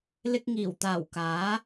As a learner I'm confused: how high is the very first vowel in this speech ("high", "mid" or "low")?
high